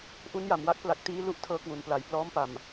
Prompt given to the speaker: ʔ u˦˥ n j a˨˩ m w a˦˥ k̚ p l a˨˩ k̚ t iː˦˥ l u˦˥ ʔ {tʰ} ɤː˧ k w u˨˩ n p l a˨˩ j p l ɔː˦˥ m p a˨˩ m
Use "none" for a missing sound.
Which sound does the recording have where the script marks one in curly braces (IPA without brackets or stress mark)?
tʰ